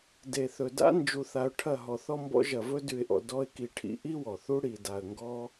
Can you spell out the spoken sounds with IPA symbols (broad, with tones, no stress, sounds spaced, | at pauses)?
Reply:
d e˨ θ ɵ˨ d a̰˦ n d͡ʒ u˧ θ a˧ ʊ̯ ʈʰ ɐ˦˨ ɦ ɔ˨ θ ɔ˧ m b ɔ̰˧ ʒ ɐ˨ v ɵ˧ d ʉ˨ ɪ̯ ʔ ɔ̰˨ d ɔ˧ ɪ̯ k i˨ ʈʰ ḭ˧ ʔ i˦ w ɔ˨ θ u˦ ɽ i˨ d a˨ ə̯ ŋ ɡ ɔ˦